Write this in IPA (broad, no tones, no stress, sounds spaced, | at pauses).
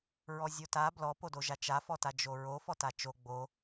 ɹ ɔ zʲ o t a b l ɔ p o d o ʒ a t͡ʃ a f ɔ t a d͡ʒ o ɹ o f ɔ t a t͡ʃ o ɡ͡b o